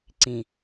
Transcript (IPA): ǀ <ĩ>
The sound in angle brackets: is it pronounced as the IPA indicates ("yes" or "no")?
yes